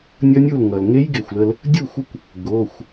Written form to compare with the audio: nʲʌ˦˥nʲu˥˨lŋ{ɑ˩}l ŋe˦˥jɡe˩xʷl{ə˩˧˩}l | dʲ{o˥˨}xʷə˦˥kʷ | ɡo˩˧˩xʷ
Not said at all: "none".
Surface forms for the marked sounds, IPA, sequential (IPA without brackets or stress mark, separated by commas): ʌ˩, ə˧, u˥˨